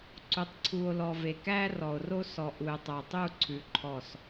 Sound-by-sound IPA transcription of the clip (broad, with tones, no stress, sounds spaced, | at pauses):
ǀ u˨ tˤ ǀʰ u˨ o̯ l ɔ˨ v e˨ k æ˦ r ɔ˨ o̯ r o˦ s ɔ˨ ʔ u˨ e̯ tˤ œ˨ tˤ u˦˨ ǀʰ ʉ˨ ǃʰ ɔ˦˨ s